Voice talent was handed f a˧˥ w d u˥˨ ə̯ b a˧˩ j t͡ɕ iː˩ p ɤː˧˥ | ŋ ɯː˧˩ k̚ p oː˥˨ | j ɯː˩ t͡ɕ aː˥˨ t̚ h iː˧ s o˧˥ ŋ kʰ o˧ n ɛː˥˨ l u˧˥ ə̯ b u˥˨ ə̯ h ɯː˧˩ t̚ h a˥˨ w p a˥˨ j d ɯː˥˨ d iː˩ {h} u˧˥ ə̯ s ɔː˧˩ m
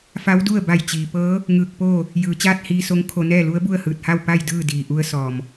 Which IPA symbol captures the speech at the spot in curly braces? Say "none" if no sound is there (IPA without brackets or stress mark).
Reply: ʔ